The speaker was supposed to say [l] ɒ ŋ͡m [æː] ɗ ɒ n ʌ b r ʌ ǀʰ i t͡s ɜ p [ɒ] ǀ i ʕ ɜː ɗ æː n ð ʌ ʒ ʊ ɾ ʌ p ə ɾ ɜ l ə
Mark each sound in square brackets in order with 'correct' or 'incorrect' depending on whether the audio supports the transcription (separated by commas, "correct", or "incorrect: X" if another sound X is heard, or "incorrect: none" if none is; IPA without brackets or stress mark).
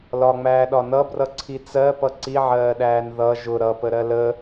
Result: correct, correct, incorrect: ʌ